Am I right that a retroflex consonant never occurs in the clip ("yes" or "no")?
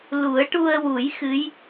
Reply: no